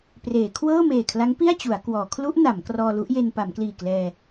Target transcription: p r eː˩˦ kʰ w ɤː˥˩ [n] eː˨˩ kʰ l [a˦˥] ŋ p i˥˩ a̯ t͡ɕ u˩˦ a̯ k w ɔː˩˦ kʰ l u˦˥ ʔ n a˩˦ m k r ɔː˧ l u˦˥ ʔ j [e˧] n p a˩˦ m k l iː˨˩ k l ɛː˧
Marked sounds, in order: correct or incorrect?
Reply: incorrect: m, correct, correct

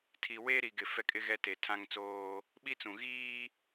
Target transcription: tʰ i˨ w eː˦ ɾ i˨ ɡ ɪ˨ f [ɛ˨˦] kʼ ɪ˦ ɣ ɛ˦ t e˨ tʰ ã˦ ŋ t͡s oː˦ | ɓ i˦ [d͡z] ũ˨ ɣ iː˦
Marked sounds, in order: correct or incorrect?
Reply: incorrect: ɛ˦, incorrect: t͡s

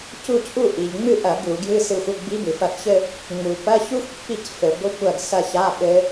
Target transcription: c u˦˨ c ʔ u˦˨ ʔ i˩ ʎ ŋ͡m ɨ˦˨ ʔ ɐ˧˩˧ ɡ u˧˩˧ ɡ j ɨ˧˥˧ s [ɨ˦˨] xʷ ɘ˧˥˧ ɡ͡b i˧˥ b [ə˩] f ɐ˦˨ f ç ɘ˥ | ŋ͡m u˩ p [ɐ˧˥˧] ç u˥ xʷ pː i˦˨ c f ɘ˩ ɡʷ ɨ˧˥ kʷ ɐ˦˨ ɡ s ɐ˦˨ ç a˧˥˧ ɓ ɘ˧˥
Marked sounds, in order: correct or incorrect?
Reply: correct, incorrect: ɨ˩, correct

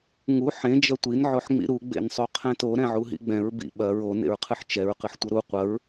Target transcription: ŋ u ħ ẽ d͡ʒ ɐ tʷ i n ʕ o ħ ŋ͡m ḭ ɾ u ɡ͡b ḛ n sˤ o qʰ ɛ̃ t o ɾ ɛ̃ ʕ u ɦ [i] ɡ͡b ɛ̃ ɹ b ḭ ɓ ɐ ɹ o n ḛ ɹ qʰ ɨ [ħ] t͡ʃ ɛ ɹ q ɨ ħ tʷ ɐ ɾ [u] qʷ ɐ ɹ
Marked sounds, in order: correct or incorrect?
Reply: incorrect: ḭ, correct, correct

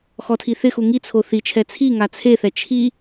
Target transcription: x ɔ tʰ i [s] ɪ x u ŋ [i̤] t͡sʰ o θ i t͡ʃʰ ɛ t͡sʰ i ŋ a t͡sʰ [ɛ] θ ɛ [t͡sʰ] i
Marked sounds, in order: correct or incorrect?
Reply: incorrect: θ, incorrect: i, incorrect: e, incorrect: t͡ʃʰ

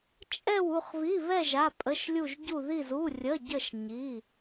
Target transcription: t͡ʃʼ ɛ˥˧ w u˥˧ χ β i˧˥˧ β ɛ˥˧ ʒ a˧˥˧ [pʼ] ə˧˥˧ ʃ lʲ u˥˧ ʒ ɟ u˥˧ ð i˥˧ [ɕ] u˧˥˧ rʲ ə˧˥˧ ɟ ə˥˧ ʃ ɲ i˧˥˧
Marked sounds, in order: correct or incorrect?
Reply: correct, incorrect: z

